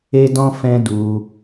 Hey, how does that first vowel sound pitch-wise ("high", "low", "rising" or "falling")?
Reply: high